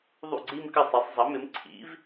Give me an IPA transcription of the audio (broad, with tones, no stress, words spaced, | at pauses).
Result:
ðˤṵ˥˩ɡ͡ǀi˥˧mkə˥˩ sˤi˩˥sˤ zˤʌ˩˥mɪ˩˥m ǀʰḭ˩˥v